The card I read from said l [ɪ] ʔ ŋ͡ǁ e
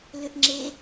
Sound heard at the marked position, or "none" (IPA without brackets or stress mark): ʏ